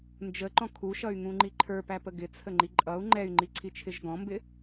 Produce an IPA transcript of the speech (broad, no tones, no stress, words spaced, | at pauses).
nd͡ʒəǃɔ̃ kʰuʃʌy̯ŋũŋ͡ǃi ǃʰə˞pæpə ɡɪt͡sʰəŋ͡ǃi ǃʼʌu̯ ŋ͡ǃɛy̯ŋ͡ǃiǀʰit͡ʃʰɪʒ ɡɔ̃mbɪ